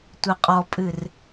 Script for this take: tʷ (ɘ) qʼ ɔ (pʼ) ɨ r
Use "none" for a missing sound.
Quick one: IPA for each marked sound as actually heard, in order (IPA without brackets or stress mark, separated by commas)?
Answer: ɘ, pʼ